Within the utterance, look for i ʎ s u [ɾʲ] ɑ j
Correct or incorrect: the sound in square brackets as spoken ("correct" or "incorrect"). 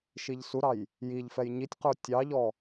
incorrect